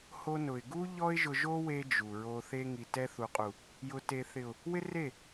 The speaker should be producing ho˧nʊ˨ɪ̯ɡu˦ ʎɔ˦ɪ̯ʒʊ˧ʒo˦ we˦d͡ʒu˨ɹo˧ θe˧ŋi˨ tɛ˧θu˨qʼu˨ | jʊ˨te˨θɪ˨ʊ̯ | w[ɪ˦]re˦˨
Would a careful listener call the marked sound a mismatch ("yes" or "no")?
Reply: no